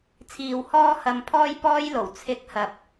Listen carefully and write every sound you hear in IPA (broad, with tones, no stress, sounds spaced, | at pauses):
t͡sʰ iː˨ w h ɔː˧ h ɐ˨ m pʰ ɔː˧ j p ɔː˥ j l o˨˩ w t͡sʰ ɪ˨˥ k̚ h ɐ˧ p̚